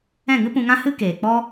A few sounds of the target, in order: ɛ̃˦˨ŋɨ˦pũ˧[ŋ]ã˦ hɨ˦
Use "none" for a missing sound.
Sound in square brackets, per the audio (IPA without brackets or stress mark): ŋ